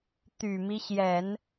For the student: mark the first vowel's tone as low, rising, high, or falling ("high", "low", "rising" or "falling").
low